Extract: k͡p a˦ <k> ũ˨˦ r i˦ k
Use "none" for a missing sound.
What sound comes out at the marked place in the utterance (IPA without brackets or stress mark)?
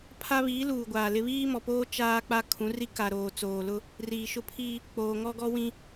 kʰ